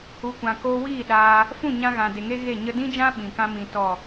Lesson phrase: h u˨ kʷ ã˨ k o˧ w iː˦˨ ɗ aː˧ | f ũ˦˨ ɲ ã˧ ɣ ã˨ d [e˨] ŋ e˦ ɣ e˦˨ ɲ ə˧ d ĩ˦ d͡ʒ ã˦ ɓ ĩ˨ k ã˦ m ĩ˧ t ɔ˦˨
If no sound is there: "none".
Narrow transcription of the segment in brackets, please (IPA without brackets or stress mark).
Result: e˨